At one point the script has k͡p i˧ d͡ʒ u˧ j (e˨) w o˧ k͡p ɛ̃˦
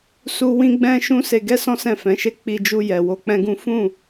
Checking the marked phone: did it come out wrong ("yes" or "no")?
yes